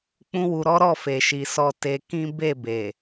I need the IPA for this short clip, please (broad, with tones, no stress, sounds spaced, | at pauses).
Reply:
k͡p ũ˦ w u˧ ɾ ɔ˦ ɾ ɔ˦˨ f e˨ ʃ i˨ s ɔ˧ t e˧ k ĩ˦ b e˦˨ b e˨